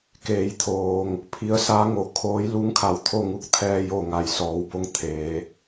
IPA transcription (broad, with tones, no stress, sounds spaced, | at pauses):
k eː˩˧ j t̪ʰ oː˩ ŋ | pʰ i˧˥ ə̯ s a˧˥ ŋ o˩˧ kʰ oː˧˥ j l u˧˥ ŋ kʰ a˩˧ w t̪ʰ o˥˨ ŋ u˧ k̚ t̪ʰ ɛː˧ j o˧˩ ŋ a˩ j s ɔː˩˧ w b o˧ ŋ t̪ʰ eː˩˧